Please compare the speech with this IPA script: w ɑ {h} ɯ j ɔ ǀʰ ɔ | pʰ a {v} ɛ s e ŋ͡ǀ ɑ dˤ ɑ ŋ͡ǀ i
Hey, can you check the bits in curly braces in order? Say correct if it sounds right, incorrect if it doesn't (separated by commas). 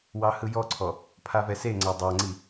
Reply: correct, correct